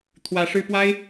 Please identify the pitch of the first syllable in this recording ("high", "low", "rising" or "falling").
rising